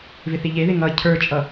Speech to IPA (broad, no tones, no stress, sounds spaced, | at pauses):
v ɪ θ i ʎ e ð ɪ ŋ ʌ cʰ ə˞ t͡ʃʼ ʌ